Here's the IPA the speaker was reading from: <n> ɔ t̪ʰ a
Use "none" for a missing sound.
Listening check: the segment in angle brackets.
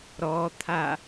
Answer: ɾ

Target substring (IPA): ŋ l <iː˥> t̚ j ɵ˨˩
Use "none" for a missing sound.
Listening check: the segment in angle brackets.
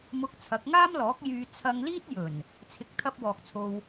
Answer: iː˥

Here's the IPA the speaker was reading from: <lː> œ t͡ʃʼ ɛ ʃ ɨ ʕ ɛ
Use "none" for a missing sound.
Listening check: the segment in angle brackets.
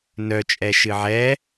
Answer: n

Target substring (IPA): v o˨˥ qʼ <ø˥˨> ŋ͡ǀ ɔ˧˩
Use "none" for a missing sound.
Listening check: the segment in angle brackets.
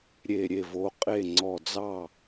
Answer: e˥˨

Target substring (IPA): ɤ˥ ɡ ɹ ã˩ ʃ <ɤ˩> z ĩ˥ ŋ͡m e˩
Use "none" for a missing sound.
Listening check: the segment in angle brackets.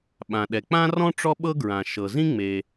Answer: ɤ˩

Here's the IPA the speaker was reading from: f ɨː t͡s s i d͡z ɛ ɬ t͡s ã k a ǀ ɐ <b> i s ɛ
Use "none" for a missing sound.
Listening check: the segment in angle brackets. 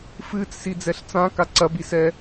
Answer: b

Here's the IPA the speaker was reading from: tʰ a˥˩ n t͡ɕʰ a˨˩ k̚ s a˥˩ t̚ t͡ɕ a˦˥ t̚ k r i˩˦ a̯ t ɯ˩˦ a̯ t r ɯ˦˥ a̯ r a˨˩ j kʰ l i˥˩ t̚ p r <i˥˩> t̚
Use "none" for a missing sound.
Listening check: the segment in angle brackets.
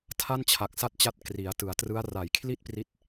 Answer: i˦˥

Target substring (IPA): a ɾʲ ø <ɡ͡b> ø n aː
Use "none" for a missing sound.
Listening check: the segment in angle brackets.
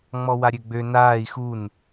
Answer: ɡ͡b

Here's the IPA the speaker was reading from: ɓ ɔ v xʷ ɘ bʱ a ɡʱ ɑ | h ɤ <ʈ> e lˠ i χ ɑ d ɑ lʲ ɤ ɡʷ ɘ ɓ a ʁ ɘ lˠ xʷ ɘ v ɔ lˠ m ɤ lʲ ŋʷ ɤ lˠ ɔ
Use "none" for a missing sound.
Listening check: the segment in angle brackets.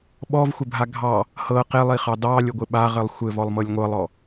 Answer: q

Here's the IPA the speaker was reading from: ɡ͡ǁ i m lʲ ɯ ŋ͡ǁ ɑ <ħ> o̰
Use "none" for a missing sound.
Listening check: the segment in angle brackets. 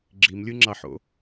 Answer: ħ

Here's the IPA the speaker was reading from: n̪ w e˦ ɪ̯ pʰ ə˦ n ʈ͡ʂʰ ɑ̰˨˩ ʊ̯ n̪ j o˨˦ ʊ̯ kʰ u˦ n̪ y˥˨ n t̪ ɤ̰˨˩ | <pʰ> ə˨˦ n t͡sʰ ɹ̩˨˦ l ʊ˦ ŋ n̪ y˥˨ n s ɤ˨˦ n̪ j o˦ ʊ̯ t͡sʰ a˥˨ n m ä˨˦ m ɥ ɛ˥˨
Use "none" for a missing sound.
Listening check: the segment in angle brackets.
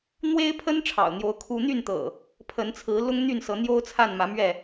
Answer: pʰ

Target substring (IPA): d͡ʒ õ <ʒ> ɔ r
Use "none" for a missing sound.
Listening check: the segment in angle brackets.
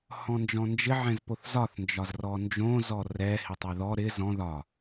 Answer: z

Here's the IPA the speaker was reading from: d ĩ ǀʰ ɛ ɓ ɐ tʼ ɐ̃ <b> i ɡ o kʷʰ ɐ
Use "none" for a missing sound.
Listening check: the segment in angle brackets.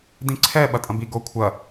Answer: b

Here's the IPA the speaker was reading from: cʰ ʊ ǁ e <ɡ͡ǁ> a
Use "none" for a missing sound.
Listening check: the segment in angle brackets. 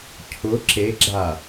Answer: ɡ͡ǁ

